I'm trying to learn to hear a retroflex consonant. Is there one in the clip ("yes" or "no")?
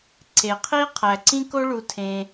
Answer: yes